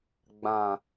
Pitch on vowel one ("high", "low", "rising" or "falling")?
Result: low